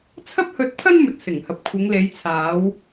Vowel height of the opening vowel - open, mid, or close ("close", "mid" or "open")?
open